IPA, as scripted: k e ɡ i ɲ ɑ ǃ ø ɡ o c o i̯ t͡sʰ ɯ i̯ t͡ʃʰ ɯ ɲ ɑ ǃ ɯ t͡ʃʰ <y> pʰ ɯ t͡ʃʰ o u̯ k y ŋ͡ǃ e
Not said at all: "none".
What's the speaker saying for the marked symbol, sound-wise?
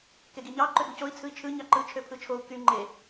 ø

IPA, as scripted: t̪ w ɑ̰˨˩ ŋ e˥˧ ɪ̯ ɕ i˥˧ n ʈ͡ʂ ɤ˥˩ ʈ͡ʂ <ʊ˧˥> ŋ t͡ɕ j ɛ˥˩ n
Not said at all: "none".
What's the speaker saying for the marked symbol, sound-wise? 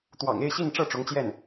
ʊ˧˥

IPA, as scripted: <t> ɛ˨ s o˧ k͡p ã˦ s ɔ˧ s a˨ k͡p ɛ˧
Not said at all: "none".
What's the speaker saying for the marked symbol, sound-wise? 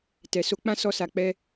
t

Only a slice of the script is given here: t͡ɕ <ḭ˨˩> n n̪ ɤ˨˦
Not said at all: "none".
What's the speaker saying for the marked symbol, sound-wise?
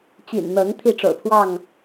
ḭ˨˩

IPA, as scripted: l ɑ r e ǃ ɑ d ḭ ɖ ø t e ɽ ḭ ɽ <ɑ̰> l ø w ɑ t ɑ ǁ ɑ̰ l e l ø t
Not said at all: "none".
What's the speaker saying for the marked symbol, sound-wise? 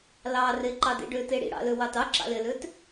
ɑ̰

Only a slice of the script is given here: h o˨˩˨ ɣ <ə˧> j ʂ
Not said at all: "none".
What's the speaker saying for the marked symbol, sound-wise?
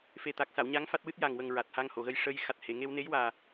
ə˧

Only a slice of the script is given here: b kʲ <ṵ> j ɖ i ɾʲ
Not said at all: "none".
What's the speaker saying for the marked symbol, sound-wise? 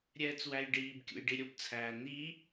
ṵ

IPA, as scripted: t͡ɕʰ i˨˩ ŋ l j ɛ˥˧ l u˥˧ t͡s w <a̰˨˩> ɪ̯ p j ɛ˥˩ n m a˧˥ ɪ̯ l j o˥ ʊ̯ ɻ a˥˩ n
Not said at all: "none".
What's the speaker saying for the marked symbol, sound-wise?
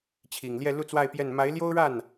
a˥˧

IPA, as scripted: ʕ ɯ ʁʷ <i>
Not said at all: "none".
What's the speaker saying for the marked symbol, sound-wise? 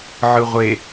e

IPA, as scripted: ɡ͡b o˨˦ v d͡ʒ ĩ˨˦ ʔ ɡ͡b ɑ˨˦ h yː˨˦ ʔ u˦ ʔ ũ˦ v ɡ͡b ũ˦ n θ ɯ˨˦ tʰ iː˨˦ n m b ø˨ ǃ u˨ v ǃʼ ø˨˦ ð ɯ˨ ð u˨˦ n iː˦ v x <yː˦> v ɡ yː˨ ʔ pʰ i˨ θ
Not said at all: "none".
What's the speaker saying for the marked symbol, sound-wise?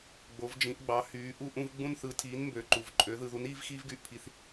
iː˦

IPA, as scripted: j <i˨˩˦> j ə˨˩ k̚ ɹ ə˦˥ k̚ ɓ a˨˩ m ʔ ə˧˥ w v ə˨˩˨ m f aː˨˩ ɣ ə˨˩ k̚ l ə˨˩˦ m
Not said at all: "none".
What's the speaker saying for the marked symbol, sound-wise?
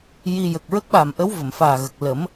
i˧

